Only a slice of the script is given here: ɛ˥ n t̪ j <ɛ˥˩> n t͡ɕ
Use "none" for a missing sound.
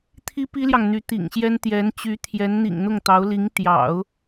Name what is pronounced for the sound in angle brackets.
ɛ˧˥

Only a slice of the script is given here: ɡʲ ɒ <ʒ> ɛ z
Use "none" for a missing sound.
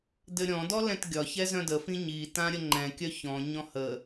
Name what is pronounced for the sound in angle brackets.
ç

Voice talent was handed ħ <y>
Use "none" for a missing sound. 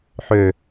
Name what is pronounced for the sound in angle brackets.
ø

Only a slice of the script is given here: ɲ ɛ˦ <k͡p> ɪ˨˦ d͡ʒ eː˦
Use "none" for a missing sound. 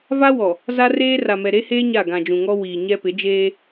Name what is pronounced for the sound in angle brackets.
p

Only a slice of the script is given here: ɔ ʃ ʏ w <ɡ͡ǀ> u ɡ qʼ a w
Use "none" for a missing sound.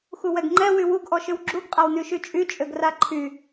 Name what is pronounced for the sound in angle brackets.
ɡ͡ǁ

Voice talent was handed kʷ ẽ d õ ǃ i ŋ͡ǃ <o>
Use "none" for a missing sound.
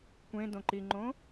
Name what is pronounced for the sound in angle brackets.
õ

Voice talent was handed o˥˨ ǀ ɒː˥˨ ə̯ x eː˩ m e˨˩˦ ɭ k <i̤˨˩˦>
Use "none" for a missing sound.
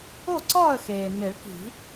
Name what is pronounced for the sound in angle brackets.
i̤˨˩˦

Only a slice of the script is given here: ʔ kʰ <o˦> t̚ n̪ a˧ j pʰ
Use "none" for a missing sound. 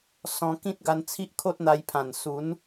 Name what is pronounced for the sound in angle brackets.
o˦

